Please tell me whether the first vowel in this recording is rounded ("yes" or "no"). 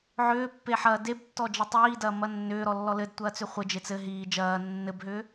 yes